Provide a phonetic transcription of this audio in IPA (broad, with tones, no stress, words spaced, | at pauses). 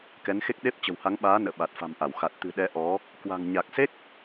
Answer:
kɛ˨˦nxe˦˥k̚ɗe˦˥p̚ t͡ɕə̤˨˩wha˨˦ŋɓaː˨˦ nə̰ː˧˨ɓa˨˩t̚fa̤˨˩mʔa˧˩w xa˨˩t̚ t̪ɨ̤˨˩ ɗɛ˧ʔɔ˨˦ | kwa̤˨˩ŋ ɲa˨˩k̚se˦˥k̚